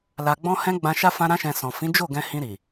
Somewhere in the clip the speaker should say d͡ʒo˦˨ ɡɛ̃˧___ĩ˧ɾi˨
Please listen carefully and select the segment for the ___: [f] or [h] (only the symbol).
h